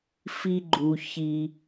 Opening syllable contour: high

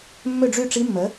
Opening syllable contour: falling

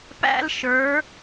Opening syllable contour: high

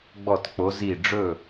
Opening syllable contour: falling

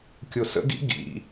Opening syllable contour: low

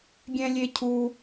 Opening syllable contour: high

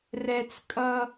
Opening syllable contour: high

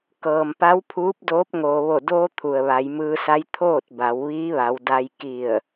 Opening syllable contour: low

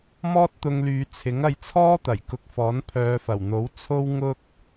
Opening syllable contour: high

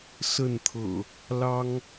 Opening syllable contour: falling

